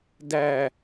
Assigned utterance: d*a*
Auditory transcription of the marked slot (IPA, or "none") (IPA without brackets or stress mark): æ